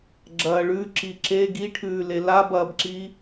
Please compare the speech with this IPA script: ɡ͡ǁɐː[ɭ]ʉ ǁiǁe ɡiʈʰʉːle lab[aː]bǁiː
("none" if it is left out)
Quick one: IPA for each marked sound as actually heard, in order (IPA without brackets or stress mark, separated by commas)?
ɭ, ɐː